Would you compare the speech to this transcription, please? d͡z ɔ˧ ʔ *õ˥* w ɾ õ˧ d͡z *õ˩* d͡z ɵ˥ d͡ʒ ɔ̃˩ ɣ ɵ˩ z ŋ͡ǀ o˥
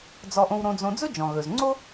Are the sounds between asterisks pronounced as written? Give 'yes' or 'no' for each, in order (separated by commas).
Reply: no, no